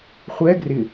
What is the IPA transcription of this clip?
χʷ ɛ ɡ r ɪ

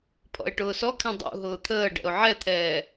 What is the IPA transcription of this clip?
pʰ ɔ̰ ɪ̯ ʈ ʊː s ɔ kʰ ɛ̃ dˤ ṵ ɦ ʊː t̪ʰ əː ɖ ɛ̰ ʊ̯ ʕ ɛ t̪ʰ ɛː

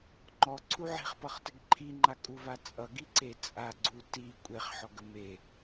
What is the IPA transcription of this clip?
ŋ͡ǃ ɔ ǀʰ u ʕ i̤ χ p ʌ χ t ə ɡ ǃʰ i ŋ͡ǃ a kʼ u v a t͡sʼ ʌ ɡ i ǀ e t͡sʼ a ɡ͡ǀ u t i kʷʼ e χ ħ ɔ ɡ ə m e

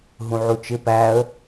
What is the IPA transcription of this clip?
ɦ ũ ʕ u t͡ʃ ɪ p æ ə̯

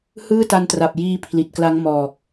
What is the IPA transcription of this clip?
h ɯː˥˩ t a˧ n t r a˨˩ p̚ j iː˦˥ pʰ l i˨˩ t̚ k l a˦˥ ŋ m ɔː˨˩ k̚

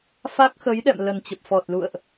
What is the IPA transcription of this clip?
f a˦˥ k̚ x ə˨˦ j ɗ ɛ̰˧˨ m l ə˨˩ n t͡ɕ ə˨˩ p̚ f ɔ˨˩ t̚ l ṵ˧˨ ə̯ ʔ

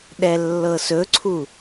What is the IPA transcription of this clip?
ɗ ɛ lː ɤ s ɵ ǀʰ u

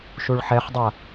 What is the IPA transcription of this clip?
ʃ u ɭ ħ ɛ χ dˤ a

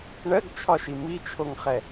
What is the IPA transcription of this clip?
ɳ ɜ ɡ t͡ʃʰ ɒ ʃ i m i t͡ʃʰ o ŋ χ ɛ

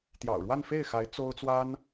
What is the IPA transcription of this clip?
t̪ j ɑ̰˨˩ ʊ̯ ɻ w a˥˧ n f e˥˩ ɪ̯ x a˧˥ ɪ̯ t͡s o˥ ʊ̯ t͡s w a˥ n

